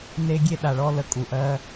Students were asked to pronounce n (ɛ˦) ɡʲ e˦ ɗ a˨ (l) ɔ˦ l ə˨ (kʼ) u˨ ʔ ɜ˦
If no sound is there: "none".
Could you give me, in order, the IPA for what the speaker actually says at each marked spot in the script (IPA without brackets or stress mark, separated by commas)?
e˦, ɭ, kʼ